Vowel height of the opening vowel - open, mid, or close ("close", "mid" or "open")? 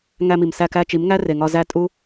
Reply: open